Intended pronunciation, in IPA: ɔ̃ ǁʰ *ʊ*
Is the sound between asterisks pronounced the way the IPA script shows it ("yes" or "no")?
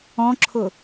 yes